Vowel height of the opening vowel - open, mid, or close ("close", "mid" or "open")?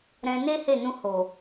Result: mid